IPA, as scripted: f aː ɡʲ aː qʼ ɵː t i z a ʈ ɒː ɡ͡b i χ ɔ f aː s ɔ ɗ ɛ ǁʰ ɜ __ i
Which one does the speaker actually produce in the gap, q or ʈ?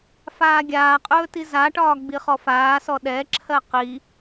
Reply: q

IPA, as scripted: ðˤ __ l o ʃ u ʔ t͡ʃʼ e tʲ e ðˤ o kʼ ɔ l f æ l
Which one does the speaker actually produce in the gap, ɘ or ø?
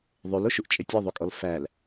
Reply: ø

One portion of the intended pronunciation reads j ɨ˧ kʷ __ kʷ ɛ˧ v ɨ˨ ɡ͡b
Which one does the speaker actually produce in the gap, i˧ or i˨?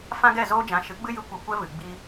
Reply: i˨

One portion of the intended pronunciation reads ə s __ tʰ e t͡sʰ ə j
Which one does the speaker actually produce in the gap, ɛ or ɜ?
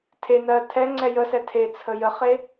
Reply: ɛ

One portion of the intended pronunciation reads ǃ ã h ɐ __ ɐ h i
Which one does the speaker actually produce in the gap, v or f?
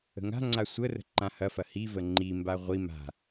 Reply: f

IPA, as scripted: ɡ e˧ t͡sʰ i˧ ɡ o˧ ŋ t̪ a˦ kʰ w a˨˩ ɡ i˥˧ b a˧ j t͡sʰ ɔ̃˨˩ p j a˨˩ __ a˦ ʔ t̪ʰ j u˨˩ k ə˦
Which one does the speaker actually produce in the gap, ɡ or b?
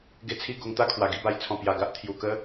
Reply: ɡ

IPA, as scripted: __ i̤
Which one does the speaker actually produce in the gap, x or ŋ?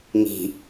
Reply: ŋ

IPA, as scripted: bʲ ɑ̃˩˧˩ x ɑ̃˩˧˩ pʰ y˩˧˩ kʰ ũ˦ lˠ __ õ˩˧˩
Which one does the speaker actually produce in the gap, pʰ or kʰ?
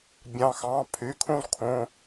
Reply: kʰ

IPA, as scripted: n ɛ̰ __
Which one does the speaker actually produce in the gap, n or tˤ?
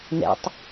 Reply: tˤ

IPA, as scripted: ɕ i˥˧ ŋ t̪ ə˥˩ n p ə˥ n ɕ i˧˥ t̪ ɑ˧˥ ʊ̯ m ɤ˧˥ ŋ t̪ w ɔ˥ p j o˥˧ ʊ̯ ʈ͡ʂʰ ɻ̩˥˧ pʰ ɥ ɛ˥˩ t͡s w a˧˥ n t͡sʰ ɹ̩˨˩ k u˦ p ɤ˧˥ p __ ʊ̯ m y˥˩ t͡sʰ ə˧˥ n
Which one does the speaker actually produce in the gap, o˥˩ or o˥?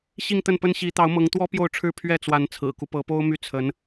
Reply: o˥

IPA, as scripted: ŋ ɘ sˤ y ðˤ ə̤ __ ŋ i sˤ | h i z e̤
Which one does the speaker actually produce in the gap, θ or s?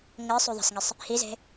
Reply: s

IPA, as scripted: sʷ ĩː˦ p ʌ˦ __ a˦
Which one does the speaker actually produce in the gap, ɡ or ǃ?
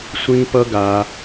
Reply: ɡ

